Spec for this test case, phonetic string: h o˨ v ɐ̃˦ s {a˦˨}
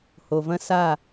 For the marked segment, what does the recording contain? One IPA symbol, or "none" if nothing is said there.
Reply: a˦˨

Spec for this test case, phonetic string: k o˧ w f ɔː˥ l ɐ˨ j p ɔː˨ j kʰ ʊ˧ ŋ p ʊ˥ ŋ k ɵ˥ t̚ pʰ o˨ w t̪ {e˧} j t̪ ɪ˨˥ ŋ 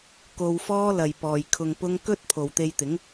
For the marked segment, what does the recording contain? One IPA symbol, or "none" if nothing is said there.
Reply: e˧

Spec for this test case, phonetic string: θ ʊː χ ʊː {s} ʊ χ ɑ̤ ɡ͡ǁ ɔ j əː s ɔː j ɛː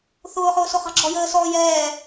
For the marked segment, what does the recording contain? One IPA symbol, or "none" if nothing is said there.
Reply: s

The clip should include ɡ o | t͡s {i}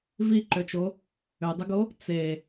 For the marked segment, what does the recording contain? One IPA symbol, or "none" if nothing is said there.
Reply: e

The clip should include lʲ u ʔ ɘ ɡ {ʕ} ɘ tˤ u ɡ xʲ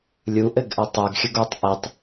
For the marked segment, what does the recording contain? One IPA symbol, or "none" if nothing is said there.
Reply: ʔ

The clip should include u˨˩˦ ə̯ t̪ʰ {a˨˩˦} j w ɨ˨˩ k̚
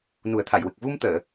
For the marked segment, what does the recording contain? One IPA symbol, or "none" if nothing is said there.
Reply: a˨˩˨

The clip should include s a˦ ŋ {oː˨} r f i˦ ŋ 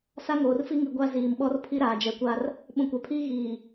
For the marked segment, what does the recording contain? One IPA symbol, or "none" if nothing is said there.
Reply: oː˨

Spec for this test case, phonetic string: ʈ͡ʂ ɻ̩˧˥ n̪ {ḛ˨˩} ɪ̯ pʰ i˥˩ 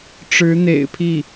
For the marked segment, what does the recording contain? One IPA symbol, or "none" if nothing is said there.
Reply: ḛ˨˩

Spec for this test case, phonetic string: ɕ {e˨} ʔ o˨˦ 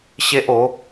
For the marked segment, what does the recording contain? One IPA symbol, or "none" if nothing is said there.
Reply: e˦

